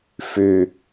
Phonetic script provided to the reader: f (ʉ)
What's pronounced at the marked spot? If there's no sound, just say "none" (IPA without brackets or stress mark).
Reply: ʉ